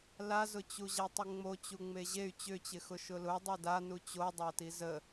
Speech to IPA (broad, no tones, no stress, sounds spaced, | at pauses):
l a z ʊ t͡ɕ u ʑ a tˤ ɪ ŋ͡m o t͡ɕ u ŋ͡m e ʑ e y̯ t͡ɕ ʏ t͡ɕ ɪ x ʊ ʃ ʊ l ʊ dˤ o d a n u t͡ɕ o dˤ a t i z ə